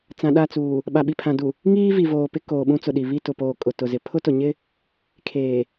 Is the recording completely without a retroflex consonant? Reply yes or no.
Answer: yes